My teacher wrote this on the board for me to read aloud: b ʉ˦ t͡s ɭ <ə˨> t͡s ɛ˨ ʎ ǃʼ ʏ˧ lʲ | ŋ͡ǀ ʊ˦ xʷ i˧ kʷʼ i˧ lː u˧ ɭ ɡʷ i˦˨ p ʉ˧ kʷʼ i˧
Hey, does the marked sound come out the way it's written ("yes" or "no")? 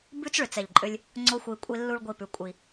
no